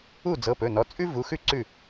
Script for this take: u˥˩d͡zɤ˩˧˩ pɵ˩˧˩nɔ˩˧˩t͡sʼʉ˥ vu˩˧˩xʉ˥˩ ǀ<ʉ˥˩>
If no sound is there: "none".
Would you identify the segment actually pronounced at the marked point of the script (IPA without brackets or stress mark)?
ʉ˥˩